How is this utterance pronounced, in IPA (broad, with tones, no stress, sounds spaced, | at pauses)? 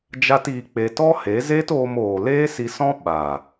d͡ʒ a˦ t iː˧ k͡p e˧ t ɔ˦ h e˨˦ z eː˦ t oː˧ m oː˨ l eː˦ s i˧ s ɔ̃˦ ɓ a˨